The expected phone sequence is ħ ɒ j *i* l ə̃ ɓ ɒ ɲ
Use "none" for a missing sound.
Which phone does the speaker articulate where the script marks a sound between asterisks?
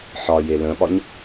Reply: e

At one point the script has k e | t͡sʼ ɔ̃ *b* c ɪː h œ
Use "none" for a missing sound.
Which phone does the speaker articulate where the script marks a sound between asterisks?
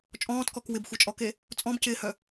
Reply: b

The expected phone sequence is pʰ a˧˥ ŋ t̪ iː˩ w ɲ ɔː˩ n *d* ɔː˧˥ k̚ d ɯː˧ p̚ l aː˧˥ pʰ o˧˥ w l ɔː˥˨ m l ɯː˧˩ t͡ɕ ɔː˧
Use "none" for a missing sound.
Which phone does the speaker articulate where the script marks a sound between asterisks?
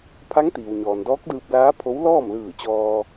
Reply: d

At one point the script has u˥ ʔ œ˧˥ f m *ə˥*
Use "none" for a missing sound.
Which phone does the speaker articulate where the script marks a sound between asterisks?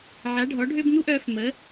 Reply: ə˧˥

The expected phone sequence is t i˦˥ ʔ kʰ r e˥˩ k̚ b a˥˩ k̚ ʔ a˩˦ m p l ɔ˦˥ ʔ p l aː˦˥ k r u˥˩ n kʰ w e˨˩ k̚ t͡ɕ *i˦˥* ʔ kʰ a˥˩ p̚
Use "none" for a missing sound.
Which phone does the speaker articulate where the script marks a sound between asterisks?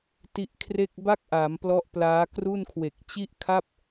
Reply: i˥˩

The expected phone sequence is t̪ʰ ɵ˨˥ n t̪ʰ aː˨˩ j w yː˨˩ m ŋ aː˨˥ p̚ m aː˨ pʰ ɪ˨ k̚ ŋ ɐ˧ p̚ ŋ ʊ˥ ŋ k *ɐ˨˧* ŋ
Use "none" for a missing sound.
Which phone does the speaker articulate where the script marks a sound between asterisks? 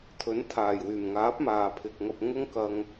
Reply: ɐ˧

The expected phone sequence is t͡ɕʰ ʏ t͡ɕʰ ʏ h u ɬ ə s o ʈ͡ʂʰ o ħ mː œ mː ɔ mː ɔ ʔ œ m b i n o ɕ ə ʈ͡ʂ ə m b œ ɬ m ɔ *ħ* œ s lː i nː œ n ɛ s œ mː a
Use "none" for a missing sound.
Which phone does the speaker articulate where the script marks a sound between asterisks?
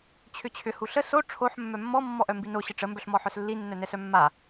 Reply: ħ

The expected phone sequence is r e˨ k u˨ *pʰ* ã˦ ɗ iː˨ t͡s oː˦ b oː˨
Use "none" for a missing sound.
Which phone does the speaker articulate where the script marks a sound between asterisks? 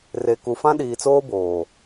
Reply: f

